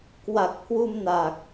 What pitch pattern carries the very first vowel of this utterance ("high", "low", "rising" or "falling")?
low